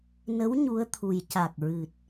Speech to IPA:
n ə˧˥ w ɲ u˧˥ ə̯ t̪ʰ u˨˩ j c a˨˩ k̚ ɹ ɨ˨˩ t̚

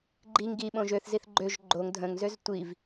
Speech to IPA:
ɡ͡ǃ i ŋ ɡ i ɓ õ ʒ ø θ z i θ ɡ͡ǃ ø ʒ ɡ͡ǃ o ŋ dʱ ə̃ ŋ z ø z tʷ i v

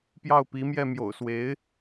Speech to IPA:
p j ɑ˥˩ ʊ̯ p i˧˥ m j ɛ˥˩ m j o̰˨˩ ʊ̯ s w e˧˥ ɪ̯

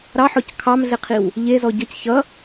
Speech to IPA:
ɾ ɑ ħ ɔ c kʰ ɑ m ɮ e qʰ i w | ʎ e z ɔ ɟ ʌ c ç ʌ

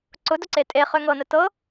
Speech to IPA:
ǀ ʊ d ʊ ǀ e tʼ e χ ø ŋ ɤ n ə t ɤ

